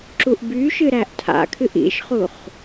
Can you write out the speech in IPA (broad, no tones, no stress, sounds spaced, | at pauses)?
ǁ u ʔ b y ʃ ɨ ɾ æ ʔ tʰ a̰ kʰ ɨ ʔ ḭ ʃ χ u χ